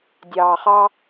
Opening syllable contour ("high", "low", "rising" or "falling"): low